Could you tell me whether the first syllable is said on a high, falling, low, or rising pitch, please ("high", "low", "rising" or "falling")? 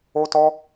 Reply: high